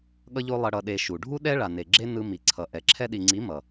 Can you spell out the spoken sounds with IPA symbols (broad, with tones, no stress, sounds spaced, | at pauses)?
ɠ ʌ˦ ʎ o˦ lˠ ʌ˧ ɽ ʌ˧ ɗ e˧ ʃ u˨ ɖʱ u˦ ɗ ɛ˦ ɭ a˨ n e˨ ɡ͡ǁ e˦ n ɯ˧ m i˨ ǀʰ ʌ˨ ʔ ɛ˨ ǁʰ ɛ˧ ɗ i˨ ŋ͡ǀ i˨˦ m ʌ˨